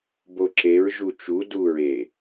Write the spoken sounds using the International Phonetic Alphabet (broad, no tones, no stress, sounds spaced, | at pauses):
b o ǁ e ɹ ʒ u t͡ʃ u d u ɹ e